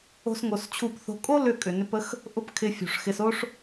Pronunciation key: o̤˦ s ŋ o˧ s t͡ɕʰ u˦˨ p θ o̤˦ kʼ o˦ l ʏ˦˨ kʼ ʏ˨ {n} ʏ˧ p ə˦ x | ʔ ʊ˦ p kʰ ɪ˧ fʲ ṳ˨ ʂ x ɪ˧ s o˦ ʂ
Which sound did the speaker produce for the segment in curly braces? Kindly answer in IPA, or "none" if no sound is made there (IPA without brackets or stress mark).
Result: n